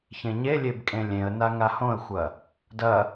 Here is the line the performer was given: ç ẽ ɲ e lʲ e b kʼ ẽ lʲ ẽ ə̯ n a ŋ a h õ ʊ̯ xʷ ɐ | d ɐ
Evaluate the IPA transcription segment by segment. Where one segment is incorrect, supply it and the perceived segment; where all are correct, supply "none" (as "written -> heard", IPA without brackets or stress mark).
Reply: ʊ̯ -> ə̯